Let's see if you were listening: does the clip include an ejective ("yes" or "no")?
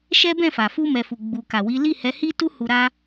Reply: no